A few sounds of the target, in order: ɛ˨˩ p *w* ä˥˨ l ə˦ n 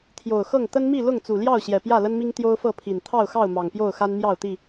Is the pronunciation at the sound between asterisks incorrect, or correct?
incorrect: j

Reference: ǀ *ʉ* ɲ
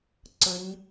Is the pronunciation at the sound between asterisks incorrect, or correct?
incorrect: ə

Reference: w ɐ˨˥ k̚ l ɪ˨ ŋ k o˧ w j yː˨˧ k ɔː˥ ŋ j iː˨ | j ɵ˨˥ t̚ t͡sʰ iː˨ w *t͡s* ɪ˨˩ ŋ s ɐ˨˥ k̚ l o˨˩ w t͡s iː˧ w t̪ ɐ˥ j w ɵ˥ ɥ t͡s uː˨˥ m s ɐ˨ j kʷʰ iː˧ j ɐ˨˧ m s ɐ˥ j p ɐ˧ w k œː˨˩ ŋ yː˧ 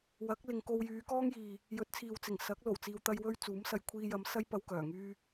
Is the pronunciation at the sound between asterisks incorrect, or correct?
correct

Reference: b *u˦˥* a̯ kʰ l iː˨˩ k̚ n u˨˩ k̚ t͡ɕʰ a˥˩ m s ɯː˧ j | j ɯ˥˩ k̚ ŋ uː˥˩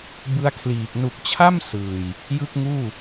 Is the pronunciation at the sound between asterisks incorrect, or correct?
incorrect: ɯ˦˥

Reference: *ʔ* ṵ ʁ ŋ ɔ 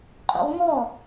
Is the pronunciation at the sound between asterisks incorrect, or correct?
incorrect: qʼ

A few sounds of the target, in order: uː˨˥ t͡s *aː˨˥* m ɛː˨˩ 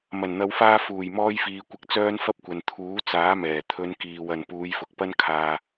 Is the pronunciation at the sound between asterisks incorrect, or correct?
correct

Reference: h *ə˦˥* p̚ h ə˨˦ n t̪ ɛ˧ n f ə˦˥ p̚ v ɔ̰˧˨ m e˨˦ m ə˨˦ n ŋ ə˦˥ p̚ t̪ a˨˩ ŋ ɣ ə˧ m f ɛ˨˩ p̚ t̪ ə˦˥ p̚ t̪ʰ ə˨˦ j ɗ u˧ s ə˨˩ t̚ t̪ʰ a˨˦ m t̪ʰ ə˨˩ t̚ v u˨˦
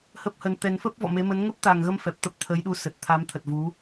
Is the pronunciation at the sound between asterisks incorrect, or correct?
correct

